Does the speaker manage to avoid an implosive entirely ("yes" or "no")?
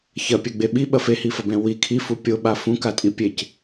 no